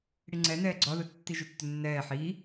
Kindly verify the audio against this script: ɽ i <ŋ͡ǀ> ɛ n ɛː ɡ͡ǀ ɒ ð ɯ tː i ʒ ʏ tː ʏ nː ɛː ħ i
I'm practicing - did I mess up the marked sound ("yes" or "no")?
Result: no